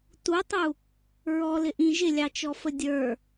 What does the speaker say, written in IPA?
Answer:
t u tˤ u | ɹ ɔ l ɪ ʔ ĩ ʒ ɪ lʲ ɑ t͡ʃ ɔ f ə dʲ ə˞

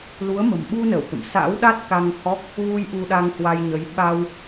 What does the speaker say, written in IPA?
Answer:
l u˨˦ ə̯ m ə̤˨˩ m ɓ u˧ n ə˧˩ w t̪ ə̰˧˨ m s a̰˧˥ w ɗ a˦˥ t̚ k a˧ ŋ h ɔ˦˥ k̚ | ɣ u˧ j ʔ u˧ ɗ a˧ ŋ h w a˧ j ɲ ə˨˦ j ɓ a˧ w

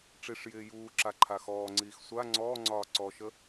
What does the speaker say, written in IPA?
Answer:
ʈ͡ʂ i ʂ j ɪː j uː ǁ a ǃʰ a x ɔː ŋ͡ǀ iː x sʷ a ŋ͡ǀ ɔː ŋ͡ǀ ɒː ǀ ɔ ʃ ə

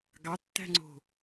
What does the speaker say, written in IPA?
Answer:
ɡ ɑ tː æ̤ ŋ͡ǀ o̤

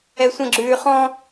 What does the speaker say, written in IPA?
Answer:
ɛ sʷ ə̃ ɡ͡ǁ ʉː χ ɔ̃

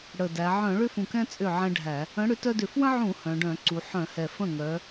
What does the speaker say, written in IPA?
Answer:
ɽ ə˨˩ d æ˩˧ ʕ œ̃˧˩˧ ɭ ʏ˦ f ũ˨˩ k ɛ̃˦ t͡sʼ ʏ˥˩ ʕ ɛ̃˦ ɖʱ æ˧˩˧ | ə̃˨˥ ɽ ʏ˨˥ t œ˦ d ʏ˧˩˧ f w ə̃˦ ʕ ũ˧˩˧ h œ̃˩˧ ɖ œ̃˧˩˧ ǀ u˩˧ ħ œ̃˧˩˧ h ɛ˨˩ f ə̃˥˩ ŋ œ˨˥

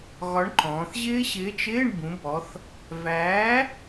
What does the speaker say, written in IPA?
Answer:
ɣ ɒ˨˥ ɳ ǃ ɔ̃ː˩˧ θ ʑ ɪː˦˥ ɕ ɪː˨˥ t͡ʃ ɪː˧˥˧ ɳ b ũ˩˧ b ɔ˩˧ θ | v æː˨˥

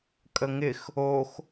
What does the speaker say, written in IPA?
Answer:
kʼ ə ŋ ɪ x | o x

